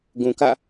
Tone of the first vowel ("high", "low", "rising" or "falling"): low